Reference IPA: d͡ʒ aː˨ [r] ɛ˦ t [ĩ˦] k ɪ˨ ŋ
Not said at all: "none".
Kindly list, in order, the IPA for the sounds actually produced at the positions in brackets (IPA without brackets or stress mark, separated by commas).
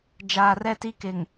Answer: r, i˦